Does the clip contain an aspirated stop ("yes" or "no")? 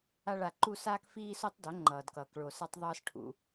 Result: yes